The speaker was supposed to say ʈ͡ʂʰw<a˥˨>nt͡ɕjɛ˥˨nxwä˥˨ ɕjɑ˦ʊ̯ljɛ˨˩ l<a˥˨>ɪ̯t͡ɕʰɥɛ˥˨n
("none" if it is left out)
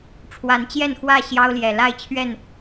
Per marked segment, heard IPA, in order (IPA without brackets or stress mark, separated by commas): a˨˦, a˥˨